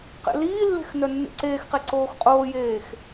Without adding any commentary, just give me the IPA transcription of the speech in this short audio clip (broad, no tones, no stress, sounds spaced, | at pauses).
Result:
q ḛ l iː lː e̤ x n œ nː ḛ ǀ eː x q e ǀ oː x qʼ oː j eː x